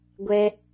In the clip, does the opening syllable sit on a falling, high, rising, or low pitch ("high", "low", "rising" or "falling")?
high